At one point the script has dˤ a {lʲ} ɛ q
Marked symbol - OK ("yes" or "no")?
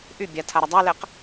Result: no